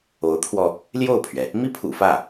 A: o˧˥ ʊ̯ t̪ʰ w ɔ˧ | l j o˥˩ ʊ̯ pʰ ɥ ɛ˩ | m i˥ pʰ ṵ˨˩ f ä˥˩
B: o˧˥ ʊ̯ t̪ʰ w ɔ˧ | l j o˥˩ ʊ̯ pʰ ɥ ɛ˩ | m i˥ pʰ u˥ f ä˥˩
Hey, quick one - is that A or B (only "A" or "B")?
A